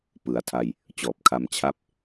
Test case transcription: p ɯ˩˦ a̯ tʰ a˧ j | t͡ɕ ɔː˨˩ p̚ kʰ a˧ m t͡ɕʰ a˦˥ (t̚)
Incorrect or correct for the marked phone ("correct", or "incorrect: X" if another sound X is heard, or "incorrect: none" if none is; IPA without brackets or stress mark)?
incorrect: p̚